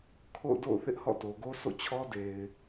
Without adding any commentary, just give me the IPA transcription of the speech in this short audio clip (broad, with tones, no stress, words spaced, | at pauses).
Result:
kʰo̰˦˨ʊ̯do̰˦˨ʊ̯θɪ˦ʔ hɔ̰˦˨to˨ɡo˦ sʰo̰˦˨t͡ɕʰɔ˦ de˨ɪ̯